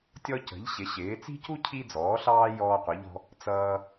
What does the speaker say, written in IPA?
tʲ ɔ˦ c ə̤˩˥ ʎ ɕ ɪ˩˥ ɕ ɪː˩˥ t͡s i̤˦ c u˦ cʰ i˦ d͡z ɔː˩˥ ɬ ɑː˦ j ɔː˦ qʷ ʌ˩˥ ʎ ɔ̤˦ | t͡s ʌː˦

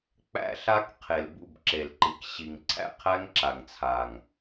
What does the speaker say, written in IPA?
k͡p æ̰˦ ɬ a˦ k qʰ e˨ l b ṵ˦˨ b ǁ e˨ l ǃ i˨ k ɕ i˨ ŋ ǀʰ æ̰˦ qʰ æ˦ ŋ ǁ a˨ ŋ t͡sʰ a˨ ŋ

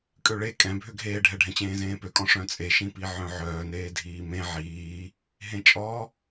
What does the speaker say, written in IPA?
kʼ ø ɭ e kʼ ɛ̃ bʱ ø ɡʱ eː ɖʱ ɛ ɖʱ ɛ̃ t͡ɕ ẽː z ẽː p ø kʼ ɔ̃ ʂ œ̃ t͡sʼ e ʃ ĩ p i ʕ œ̃ ʕ œː n eː dʱ iː m ẽ ʕ iː | ɦ ẽ t͡ʃʼ ɔ

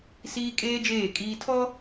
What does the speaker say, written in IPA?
s iː˦ kʼ eː˦ d͡ʒ eː˦˨ kʼ iː˦ tʰ ɔ˦

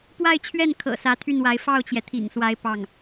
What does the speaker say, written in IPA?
p w a˥˧ ɪ̯ t͡ɕʰ ɥ ɛ˥˩ n kʰ ɤ̰˨˩ s ä˧˥ t̪ʰ y˥˩ n w a˧˥ ɪ̯ f ɑ˥˩ ʊ̯ t͡ɕ j ɛ˩ t̪ʰ ḭ˨˩ ŋ s w a˧˥ ɪ̯ p ɑ˥˩ ŋ

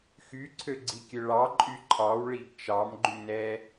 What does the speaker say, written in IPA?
x y ǀʰ ø ɡ͡ǀ i kʲ ø ɭ ɑ ǃʼ y ǃʰ ɑ w ɭ i ɡ t͡ʃ ɑ m ɡ͡ǃ y n ɛ

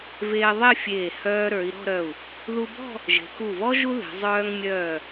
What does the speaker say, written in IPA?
v eː˧ ðˤ e˥˧ fʲ eː˧˩ h œː˧ ɾ ə˞˩˧ i̯ ɾ ɔ̤˥˧ ɾ œ˧˩ u̯ | ð u˧ b ɔ̤˥˧ | ʒ e̤˩˧ k u˧˩ v ɔ˥ ʒ u˥ ð e̤˩˧ zˤ œː˧ ŋ mʲ œː˧˩

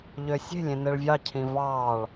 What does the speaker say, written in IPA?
ʎ ø sʲ e̤ lʲ ẽ n e ɭ vʲ ɑ cʰ ĩ v ɑ ɭ

